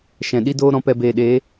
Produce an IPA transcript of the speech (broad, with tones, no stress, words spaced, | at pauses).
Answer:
ʃɛ̃˨ɗi˦doː˦ ɾɔ̃˧pɛ˧ beː˨ɗeː˨˦